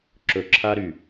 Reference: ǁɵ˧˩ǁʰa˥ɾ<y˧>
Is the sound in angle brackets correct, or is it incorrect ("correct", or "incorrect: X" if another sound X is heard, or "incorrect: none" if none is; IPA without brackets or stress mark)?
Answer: incorrect: y˧˩